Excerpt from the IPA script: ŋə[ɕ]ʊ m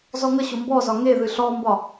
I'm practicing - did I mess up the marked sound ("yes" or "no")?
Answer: no